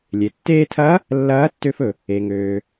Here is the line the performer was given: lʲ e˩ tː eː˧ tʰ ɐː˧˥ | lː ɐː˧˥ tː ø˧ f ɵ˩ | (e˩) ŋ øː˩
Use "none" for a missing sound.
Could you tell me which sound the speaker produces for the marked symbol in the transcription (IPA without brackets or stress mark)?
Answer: e˩